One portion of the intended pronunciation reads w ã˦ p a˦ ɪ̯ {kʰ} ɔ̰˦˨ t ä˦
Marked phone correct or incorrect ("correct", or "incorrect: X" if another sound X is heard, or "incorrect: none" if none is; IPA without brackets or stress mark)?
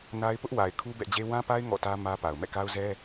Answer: incorrect: ŋ